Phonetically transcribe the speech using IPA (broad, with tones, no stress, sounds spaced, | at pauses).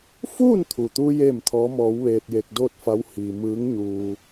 f uː˥˨ n t̪ʰ u˩ t̪ u˧ j eː˥˨ m t̪ʰ ɔː˧˥ m ɔː˧˥ w ʋ eː˧ t̚ j e˧ k̚ d oː˥˨ t̚ f a˧˥ w h iː˧ m ɯː˧˥ ŋ ɲ uː˧